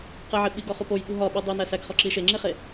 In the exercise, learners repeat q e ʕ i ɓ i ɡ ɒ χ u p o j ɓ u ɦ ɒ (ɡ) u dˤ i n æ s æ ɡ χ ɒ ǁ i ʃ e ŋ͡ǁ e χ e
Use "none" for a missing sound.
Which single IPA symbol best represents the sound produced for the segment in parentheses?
ɓ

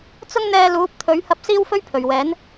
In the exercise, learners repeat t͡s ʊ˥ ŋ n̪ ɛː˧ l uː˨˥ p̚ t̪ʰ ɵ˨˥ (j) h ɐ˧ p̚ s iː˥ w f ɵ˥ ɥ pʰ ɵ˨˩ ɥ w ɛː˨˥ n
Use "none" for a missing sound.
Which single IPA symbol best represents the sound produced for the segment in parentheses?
ɥ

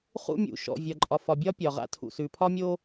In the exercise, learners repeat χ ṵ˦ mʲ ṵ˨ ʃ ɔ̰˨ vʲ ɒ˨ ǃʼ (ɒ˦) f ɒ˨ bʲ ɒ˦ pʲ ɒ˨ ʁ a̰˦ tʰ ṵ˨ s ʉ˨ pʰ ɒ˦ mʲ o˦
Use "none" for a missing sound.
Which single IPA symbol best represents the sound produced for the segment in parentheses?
ɒ˨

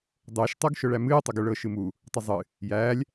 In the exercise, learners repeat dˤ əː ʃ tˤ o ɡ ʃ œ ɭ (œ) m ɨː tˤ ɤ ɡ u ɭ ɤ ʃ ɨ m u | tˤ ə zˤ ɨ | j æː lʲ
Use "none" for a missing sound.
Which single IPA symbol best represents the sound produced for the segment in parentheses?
æ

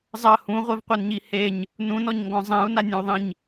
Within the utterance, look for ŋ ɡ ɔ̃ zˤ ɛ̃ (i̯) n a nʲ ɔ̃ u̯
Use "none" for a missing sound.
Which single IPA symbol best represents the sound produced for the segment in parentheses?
u̯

